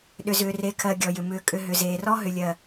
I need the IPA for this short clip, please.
ɗ ʏ˨ z ʏː˨ r e˨ kʰ ɜ˨ ɡʲ ɔ˨ j ʏ˨ m ʏː˨ kʼ ʏ˨ ɦ ʏ˨ z eː˨ r ɔ˦ ɦ ʏ˨ lʲ ɜ˨

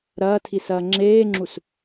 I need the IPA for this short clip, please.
ɾ ɐː tʰ i s ɐː ŋ͡ǁ eː ŋ͡ǁ u s

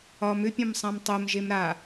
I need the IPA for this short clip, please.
ɒ m ʏ pʲ ɔ̃ m sˤ ã m tˤ o m ʒ e m ɾ a

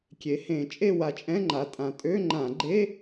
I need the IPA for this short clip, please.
kʲ e˩˧ h ẽ˧˩˧ t͡ʃʼ e˥˧ w a˨˩ t͡ʃʼ ɛ̃˧˥˧ ŋ͡ǃ a˩˧ tʼ ã˨˩ tʼ ø˧˥˧ ŋ͡ǃ ã˧˩˧ ɡ͡ǃ e˧˥˧

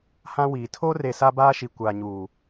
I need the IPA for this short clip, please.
h ã˦ w iː˨ tʰ o˦ r e˨ s a˦ b aː˦ ʃ i˨ kʷ aː˨ ɲ uː˨

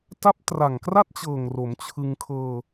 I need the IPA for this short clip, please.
t a˦˥ p̚ t r a˨˩ ŋ k r a˥˩ t̚ t͡ɕ ɤː˨˩ ŋ r o˩˦ m t͡ɕʰ ɯ˧ ŋ kʰ ɤː˧

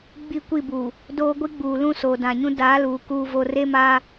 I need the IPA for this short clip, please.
ɡ͡b i˦˨ kʷ i˦˨ b uː˨ | d oː˦ ɡʷ i˦ ɡ͡b uː˨ l ũ˦ s oː˨ d ã˨ ɲ ũ˦ d aː˨˦ l uː˨ k uː˦ v o˦ r e˦ m aː˦

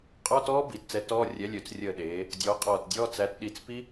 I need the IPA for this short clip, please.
qʼ ɔ˧˥˧ t ɔː˦˥ b i˩˧ t t͡s ɛ˨˥ t ɔː˧˥˧ rʲ ɛ˨˥ lʲ ø˩˧ t͡s rʲ əː˧˩ ɗ eː˩˧ | dʲ ɔː˨˥ qʼ ɔː˧˩ t dʲ ɔː˧˥˧ t͡s æ˨˥ t ɗ i˧˩ t͡s p i˦˥

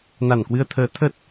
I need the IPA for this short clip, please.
n a˧˩ n k w ɨ˧ ə̯ t̪ʰ əː˨˦ t̪ʰ ə˦˥ t̚

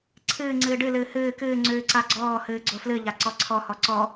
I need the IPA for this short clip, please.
ǀʰ ɨː ŋ͡ǀ ɨː ɖ ɨ l ɨː h ɨː k ɨː ŋ͡ǀ ʉː ǀ a ɡ͡ǀ ɔː h ɨː ɡ͡ǀ o f l ɨ ʎ a ǀ ɔ ǀʰ ɔ h ɔ ǀ ɔ

